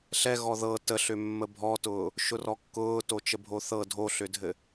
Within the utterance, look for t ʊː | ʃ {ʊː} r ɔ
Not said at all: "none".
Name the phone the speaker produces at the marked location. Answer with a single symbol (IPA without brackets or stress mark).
ʊ